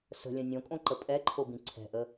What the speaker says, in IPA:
s ə̤ lʲ ə̃ nʲ õ kʼ õ ǃ ə pʼ ɛ ǃʰ o b ĩ ǀʰ ɛ̤ ʔ ə

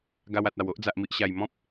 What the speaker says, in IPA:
ɡ a˧ w a˨ t̚ a˨˩ w o˦ ʔ d͡z a˨ ʔ m i˨ ʔ ɕ a˨˩ j m ɔ̃˦ p̚

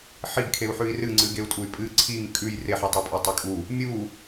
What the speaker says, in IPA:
ħ i ɡ kʰ e u̯ ħ ʉ i̯ r ɨ ŋ͡ǀ ɨ ɡ e u̯ tʼ u y̯ pʼ ɨ ǀʰ i ŋ kʼ ʉ j r e ħ ɨ tˤ u pʼ ɵ tˤ i kʼ u | mʲ u

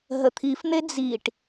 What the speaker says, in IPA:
ɦ ə t̪ʰ i f n̪ e d͡z i ʈ

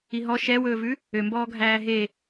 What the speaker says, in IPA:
i ɦ ɔ ʃ ɛ w ɵː v ʉ | ø m b ɔː ɡʱ æː ɦ e

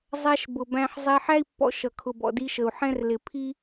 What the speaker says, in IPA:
zˤ æ˧ ʃ b ʊ˨ b æ̃˧ ħ zˤ ɛ˧ ħ æ˦ i̯ pː ɔ̰˧ ʃ ʌ˨ kʰ ʊ˨ b ɔ̰˨ d i˧ ʃ ə˨ u̯ ħ ɛ̃˦ r l ɪ˨ pʰ i˦

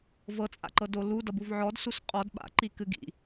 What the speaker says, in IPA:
v ɤ t͡sʼ a̰ ǃ ɤ d o l u d ʌ b u v ʕ ɔ d s u s qʼ ɔ d ɓ a̰ ǃ i k ɨ ɡ ḭ

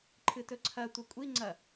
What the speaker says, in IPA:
ǃʰ ɨ t ɵ ǀʰ ɐ tʷ ɐ kʷʼ i ŋ͡ǀ ɐ

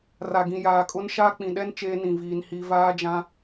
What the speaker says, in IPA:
r a˨ ɡ ĩ˨ j aː˨ kʼ ʊ˦ n ʃ aː˦ k͡p ĩ˨ ɗ ɛ˦ n t͡ʃ eː˦ n ĩ˨ v iː˨ n h i˨ v aː˦ d͡ʒ ã˦

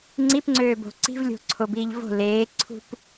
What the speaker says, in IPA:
ŋ͡ǀ i p ŋ͡ǀ øː b o̤ ǀ i̤ v lʲ o̤ ǀʰ o b iː ʎ v o̤ l eː ǀʰ ṳ p

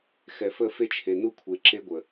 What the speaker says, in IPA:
x ɛ˨ f ə˦˨ f e˦ t͡ʃʰ e˨ n u˦ kʷʰ e˨ ǁ e˦ ɡʷ ə˨

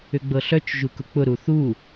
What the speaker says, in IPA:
ʏ ɡ͡b ɤ ɬ œ t͡ʃ ʒ u k ʊ k͡p ʊ ɾ u θ u

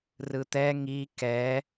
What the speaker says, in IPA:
r ɯ t̪ ɛ ŋ i k ɛ

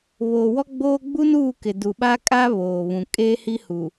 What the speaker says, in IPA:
β oː˨ w ɔ˦ ɡ͡b oː˦ ɡ͡b u˦ n uː˦˨ k ɪ˨ d uː˨ ɓ a˦ kʼ aː˦ β oː˨ β ũ˨ kʼ eː˦ h i˦ h u˨

